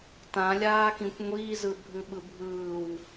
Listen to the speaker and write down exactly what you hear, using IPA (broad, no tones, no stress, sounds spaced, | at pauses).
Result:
t ã lʲ aː k ĩ kʷ ŋʷ iː z ɯ bʱ ʉ ɓ ɯ bʱ ɯː w